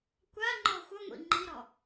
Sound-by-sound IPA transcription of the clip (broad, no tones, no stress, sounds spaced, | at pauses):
kʷ a ŋ͡ǃ ɔ xʷ ʌ ŋʷ ḭ ŋ͡ǃ i ɾ ɔ